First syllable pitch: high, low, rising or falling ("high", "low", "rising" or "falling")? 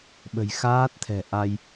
low